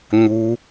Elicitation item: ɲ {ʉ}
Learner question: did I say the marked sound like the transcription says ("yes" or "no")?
no